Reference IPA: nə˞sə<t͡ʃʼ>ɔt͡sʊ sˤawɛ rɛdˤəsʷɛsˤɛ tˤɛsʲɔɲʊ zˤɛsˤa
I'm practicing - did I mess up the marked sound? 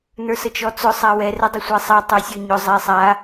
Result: yes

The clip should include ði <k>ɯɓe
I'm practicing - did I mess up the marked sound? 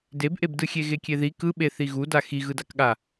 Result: no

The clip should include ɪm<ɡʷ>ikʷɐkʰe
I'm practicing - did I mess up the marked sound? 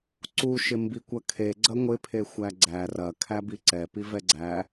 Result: yes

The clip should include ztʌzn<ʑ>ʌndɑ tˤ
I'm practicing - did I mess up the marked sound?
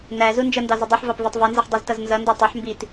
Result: yes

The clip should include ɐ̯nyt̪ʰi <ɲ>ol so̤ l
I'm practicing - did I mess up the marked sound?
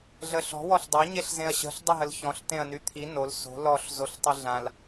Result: yes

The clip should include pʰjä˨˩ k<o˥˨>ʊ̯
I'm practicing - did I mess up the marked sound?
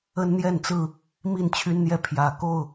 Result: no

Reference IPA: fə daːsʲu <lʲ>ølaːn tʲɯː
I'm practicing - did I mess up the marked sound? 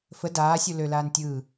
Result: yes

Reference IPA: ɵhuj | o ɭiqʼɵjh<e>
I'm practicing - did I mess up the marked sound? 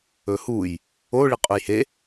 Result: no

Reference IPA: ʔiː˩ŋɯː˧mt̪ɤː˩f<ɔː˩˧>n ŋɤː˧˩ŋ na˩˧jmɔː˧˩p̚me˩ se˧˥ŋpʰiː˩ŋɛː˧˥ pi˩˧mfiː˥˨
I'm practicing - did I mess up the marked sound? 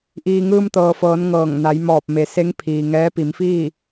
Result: yes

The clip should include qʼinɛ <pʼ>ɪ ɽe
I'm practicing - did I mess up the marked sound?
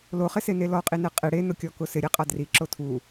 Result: yes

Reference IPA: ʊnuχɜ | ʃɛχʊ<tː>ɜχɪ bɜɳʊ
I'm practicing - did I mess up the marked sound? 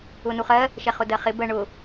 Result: yes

